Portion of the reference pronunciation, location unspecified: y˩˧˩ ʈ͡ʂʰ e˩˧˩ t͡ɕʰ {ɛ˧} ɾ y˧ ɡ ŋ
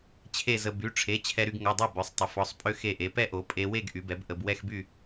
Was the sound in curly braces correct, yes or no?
yes